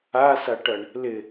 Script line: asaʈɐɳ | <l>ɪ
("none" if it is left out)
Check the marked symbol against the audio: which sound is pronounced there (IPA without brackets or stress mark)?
l